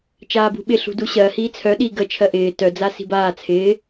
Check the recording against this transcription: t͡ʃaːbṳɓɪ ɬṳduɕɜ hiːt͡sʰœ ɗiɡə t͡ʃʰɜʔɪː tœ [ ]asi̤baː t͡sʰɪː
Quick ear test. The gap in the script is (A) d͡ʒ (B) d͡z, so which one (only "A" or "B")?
B